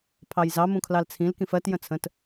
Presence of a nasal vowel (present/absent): present